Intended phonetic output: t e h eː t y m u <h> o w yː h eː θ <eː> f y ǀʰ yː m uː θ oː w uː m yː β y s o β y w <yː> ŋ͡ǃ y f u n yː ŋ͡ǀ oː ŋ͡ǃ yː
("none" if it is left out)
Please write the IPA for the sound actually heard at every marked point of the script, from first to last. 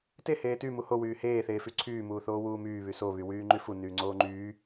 h, eː, yː

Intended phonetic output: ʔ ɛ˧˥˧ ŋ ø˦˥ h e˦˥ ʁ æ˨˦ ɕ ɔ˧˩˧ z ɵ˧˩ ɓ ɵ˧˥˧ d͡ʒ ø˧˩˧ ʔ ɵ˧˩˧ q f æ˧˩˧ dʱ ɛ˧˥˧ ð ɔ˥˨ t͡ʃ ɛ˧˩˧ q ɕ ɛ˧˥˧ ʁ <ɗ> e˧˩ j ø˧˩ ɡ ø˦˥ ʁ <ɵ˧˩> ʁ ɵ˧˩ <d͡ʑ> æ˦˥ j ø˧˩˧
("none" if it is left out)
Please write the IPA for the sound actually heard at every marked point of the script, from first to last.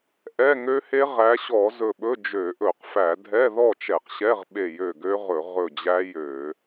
ɓ, ɵ˧˩˧, d͡ʑ

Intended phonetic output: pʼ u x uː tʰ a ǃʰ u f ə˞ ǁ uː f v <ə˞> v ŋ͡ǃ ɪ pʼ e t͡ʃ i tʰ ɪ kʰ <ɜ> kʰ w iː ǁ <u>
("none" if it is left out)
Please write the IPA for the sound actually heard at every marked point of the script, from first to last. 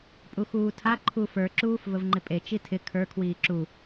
ə, ə˞, u

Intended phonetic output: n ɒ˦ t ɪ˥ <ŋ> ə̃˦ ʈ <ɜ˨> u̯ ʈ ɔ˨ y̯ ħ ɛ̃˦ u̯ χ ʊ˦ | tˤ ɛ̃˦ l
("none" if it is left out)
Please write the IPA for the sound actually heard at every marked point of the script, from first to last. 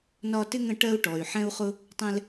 ŋ, ɜ˦

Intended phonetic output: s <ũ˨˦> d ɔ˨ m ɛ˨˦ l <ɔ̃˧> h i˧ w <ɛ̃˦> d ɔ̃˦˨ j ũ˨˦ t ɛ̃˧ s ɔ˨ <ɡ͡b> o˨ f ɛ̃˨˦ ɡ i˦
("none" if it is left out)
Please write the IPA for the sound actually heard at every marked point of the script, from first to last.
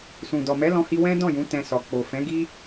ũ˨, ɔ̃˧, ɛ̃˦, k͡p

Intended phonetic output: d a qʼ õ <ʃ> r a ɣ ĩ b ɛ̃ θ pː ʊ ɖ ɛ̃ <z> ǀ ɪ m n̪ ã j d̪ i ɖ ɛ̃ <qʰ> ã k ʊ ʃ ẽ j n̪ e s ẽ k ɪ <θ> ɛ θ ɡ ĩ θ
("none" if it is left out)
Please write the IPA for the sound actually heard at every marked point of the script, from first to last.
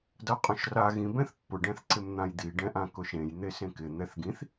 ʃ, θ, ʔ, n̪

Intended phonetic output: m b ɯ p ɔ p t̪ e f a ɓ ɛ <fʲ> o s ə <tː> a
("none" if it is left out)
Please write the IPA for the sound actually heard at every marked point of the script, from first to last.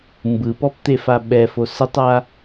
f, tˤ

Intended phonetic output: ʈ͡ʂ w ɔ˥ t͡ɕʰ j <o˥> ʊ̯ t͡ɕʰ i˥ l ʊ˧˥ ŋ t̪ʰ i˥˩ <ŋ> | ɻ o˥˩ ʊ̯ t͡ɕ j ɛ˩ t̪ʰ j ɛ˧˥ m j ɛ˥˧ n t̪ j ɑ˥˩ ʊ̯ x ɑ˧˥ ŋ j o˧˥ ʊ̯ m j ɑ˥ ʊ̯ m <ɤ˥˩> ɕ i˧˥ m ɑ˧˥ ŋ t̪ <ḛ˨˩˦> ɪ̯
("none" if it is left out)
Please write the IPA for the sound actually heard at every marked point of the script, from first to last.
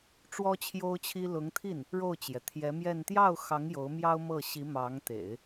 o˥, n, ɤ˥˩, ḛ˨˩˦

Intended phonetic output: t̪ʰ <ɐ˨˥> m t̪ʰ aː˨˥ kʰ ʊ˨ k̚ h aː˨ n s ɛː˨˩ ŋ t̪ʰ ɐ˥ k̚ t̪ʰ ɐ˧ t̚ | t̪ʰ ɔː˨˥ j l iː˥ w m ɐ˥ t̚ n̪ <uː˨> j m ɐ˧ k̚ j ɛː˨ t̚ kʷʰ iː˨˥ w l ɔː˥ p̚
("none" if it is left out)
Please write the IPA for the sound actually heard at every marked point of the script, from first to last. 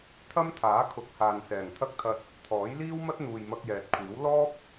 ɐ˥, uː˨

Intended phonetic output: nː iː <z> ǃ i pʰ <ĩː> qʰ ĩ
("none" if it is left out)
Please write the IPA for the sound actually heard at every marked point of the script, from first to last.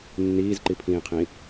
z, ĩː

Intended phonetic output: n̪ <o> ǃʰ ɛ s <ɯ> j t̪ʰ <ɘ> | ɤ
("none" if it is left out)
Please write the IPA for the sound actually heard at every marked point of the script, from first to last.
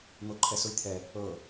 o, u, ɛ

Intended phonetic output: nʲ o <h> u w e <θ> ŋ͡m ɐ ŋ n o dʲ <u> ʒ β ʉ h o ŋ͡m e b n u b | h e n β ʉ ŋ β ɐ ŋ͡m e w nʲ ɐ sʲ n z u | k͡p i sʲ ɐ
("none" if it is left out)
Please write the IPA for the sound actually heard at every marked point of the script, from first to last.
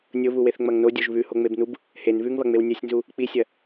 β, θ, o

